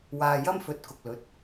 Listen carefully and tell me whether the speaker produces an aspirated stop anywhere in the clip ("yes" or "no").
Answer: no